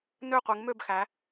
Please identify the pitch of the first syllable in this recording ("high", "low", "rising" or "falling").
falling